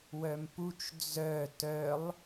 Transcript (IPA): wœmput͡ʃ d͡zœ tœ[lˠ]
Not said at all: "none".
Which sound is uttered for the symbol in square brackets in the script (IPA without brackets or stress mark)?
lˠ